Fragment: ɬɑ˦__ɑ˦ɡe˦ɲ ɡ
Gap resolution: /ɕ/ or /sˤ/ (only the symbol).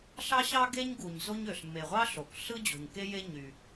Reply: ɕ